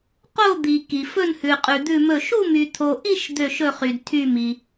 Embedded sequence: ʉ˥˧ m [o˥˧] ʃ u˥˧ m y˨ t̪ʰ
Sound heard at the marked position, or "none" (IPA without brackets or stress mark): ɵ˥˧